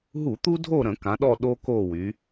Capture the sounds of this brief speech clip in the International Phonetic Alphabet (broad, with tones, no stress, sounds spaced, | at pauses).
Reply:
ɦ u˧˩˧ t̪ u˦ dʱ o˦˨ ɾ ə̃˧˩˧ k ã˩˧ ɗ ɔ˦˨ ɗ o˦ k o˦˨ w y˩˧